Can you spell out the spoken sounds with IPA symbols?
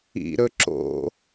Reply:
ḭɾɵ ǁo̰

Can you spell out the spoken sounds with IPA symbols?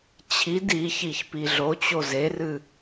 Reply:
t͡ɕʰid içiç piɮot͡ɕo zerɨ

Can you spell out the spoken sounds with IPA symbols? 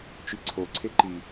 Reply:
t͡ʃiǀʰoǀʰe ǃi

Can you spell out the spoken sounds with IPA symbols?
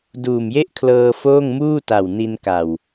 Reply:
duː˨˩mje˥˩ʔkʰlɤː˧ foː˥˩ŋmuː˥˩ta˨˩w ni˧nka˨˩w

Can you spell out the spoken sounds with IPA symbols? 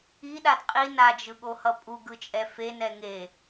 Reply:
iɗad qʼi nad͡ʒɯɠohʌ pʼuɡɯt͡ʃʼɛ fenɛ ŋe

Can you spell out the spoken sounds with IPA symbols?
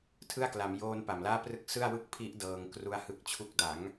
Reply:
tʰɯ˥˩a̯kla˩˦m joː˧n pa˨˩mlaː˥˩ prɯ˦˥k̚ sɯ˥˩a̯wɯ˥˩k̚pʰi˦˥ʔ dɤː˧ŋkru˦˥a̯hɯ˦˥k̚t͡ɕʰu˦˥k̚ da˩˦ŋ

